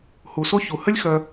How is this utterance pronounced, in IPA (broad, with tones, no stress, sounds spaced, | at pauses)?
h u˩ s o˥ ç u˩ h ə˥ lʲ x œ˨